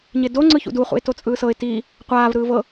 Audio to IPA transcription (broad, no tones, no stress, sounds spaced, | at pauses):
ɲ e d o ŋ͡ǀ ɯ ç ṵ d u χ ṵ ɪ̯ t o t͡sʼ ɯː s ɤ ɪ̯ t i | qʷ aː v ɾ ɯː v ɤ